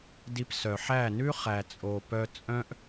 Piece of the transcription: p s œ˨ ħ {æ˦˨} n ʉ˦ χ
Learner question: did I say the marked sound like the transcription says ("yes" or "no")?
yes